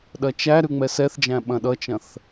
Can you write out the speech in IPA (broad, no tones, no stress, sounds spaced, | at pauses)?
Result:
ɗ ɐ t͡ʃ æ ɾ ʉ ŋ͡m ɛ s ɛ θ d͡ʒ æ̃ ɓ ɐ̃ ɗ ʌ t͡ʃ ɐ̃ θ